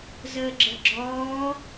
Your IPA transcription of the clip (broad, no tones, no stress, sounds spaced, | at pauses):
z əː ɡ͡ǁ ə ɡ͡ǁ ɔː